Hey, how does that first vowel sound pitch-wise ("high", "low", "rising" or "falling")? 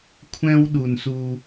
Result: high